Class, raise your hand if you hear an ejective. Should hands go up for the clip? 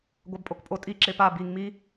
yes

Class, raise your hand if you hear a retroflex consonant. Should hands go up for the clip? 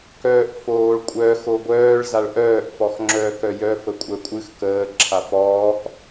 yes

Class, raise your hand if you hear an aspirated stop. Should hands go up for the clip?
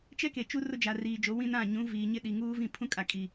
yes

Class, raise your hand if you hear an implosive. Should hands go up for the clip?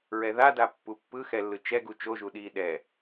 yes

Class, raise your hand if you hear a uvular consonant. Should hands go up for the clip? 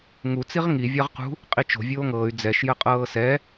yes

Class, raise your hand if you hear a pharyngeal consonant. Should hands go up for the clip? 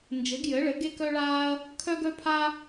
no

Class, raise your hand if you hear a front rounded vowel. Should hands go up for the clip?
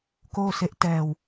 no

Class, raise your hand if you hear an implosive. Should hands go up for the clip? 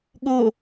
yes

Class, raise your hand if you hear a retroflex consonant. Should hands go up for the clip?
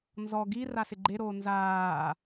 no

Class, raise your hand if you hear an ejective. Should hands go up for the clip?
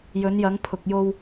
no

